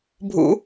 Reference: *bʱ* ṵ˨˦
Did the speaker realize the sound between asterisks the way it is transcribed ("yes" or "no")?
yes